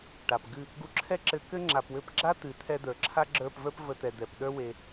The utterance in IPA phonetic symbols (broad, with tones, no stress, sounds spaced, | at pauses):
ʈ a˨ p ɡ ɨ˦˨ | ɡ u˧ ǁʰ ɛ˦ ǁ ɘ˧ k ɘ˦ ŋ͡ǁ a˨ p w ɘ˧ p ɡ͡ǁ a˦ t̪ ɨ˨˦ t̪ʰ ɛ˦ d̪ ə˞˨ ǁʰ a˦ ɡ͡ǁ ə˞˦˨ p v ə˞˦ p v ə˧ t̪ ɛ˨ d̪ ɛ˨ p ɗ ə˞˦ w e˧